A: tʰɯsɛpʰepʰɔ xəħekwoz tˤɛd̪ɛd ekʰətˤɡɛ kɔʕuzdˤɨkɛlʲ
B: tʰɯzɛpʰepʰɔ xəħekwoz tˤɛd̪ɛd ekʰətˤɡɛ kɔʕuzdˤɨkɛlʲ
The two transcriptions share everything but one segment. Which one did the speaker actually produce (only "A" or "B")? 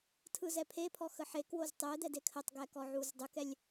B